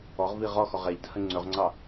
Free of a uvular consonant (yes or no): no